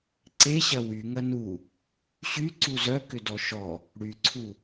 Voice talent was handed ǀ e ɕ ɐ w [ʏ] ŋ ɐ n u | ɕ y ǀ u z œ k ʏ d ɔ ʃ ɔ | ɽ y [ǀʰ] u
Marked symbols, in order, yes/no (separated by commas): no, yes